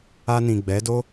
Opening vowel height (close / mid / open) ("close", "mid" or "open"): open